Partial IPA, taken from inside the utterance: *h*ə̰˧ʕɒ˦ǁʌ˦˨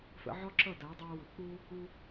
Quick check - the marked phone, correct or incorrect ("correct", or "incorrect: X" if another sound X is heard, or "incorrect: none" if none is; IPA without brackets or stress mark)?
incorrect: f